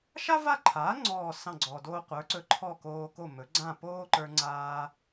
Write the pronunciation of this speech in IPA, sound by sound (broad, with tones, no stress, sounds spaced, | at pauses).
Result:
ʃ a˥ v a˥˩ ǃʰ aː˩˥ ŋ͡ǀ ɔː˥˩ s ɑ̃˥˩ ɡ͡ǀ ɔ˩ d oː˧ qʷ ə˞˩˥ ǀ ɵ˧ ǃʰ ɔ˥˩ k oː˧ k o˥˩ m ɵ˩˥ ɡ͡ǀ ã˥˩ p oː˥ ǃ ə˞˧ ŋ͡ǀ aː˧